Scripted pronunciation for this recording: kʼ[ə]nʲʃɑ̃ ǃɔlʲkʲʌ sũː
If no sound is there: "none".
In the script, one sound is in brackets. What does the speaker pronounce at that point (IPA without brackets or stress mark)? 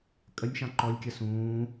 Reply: ə